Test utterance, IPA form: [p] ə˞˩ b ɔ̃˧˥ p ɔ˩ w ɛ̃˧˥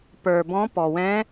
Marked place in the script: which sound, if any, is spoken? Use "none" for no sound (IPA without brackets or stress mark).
p